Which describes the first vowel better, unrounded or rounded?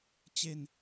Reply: unrounded